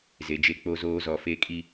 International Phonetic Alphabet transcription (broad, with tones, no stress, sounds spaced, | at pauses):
z e˨ d͡ʒ e˦ k͡p o˦ z oː˦ z ɔ˨ f e˦ kʼ i˦